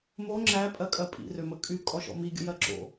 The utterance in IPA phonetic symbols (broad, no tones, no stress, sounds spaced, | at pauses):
m o ŋ͡ǁ æ pʼ ɜ kʼ ɜ pʼ ḭ r ø m ə kʼ y kʼ ɔ ʃ ɔ̰ m i ɡʲ ə̰ j ɜ ǁ o̰